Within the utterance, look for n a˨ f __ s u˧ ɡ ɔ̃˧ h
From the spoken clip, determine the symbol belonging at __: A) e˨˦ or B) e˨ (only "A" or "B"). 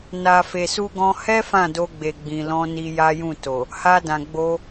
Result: B